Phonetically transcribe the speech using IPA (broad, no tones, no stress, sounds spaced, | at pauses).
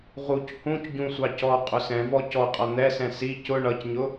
ʁ u c h ũ c ɟ ũ sʷ ɑ c ɔ qʼ ʊ s ɛ̃ v ɔ c ɔ qʼ ʌ n̪ ɛ s ɛ̃ s i c ʊ ɳ ʌ c ɲ ʊ